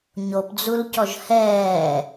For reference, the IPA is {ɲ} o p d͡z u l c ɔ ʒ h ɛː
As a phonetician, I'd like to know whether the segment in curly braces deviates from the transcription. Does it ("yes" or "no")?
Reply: no